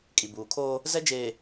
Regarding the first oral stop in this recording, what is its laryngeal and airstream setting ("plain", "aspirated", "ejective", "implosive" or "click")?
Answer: ejective